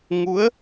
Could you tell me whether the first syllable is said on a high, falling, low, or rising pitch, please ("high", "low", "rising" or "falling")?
rising